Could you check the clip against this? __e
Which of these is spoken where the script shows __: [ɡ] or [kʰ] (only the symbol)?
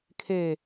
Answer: kʰ